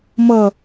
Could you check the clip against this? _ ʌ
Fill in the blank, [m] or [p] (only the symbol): m